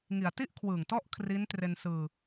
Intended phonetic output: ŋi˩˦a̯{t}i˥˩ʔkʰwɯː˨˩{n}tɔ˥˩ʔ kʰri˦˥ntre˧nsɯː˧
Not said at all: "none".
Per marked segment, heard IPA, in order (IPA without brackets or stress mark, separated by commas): t, ŋ